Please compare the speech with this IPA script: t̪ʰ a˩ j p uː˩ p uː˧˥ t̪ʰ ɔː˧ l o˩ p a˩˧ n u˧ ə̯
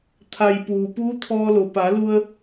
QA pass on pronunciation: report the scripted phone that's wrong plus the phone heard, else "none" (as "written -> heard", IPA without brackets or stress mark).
n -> l